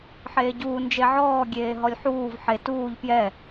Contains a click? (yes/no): no